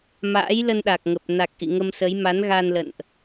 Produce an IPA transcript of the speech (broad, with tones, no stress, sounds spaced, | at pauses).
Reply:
m a̰ː˧˥ j l ə˧ n ɗ a˨˩ k̚ ŋ ə˨˩ p̚ n a˨˩ k̚ ʔ ḭ˧˨ ŋ ə˧ m s ə˨˦ j m a˨˦ n ɣ a˧ n l ə̰˧˨ n ʔ